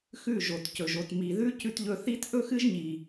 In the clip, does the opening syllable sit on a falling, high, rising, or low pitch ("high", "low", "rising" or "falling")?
falling